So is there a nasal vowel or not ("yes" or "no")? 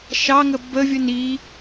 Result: no